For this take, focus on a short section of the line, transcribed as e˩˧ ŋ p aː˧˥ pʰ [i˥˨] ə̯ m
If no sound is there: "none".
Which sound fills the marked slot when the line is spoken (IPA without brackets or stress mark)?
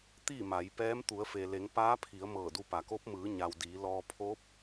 i˩˧